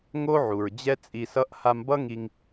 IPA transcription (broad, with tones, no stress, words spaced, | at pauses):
ŋo˦ʕu˨ɹ d͡ʑɛ˦t͡sʼi˧sʌ˦ʔ ha˧mbʌ˦ŋi˧ŋ